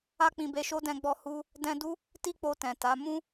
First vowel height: low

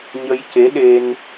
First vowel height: mid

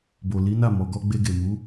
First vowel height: mid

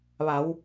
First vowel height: low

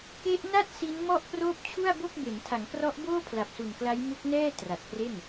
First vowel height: mid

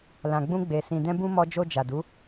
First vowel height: low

